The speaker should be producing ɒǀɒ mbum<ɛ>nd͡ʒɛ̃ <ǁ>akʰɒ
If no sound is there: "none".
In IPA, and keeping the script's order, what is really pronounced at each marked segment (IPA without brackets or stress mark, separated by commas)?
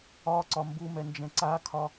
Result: ɛ, ǀ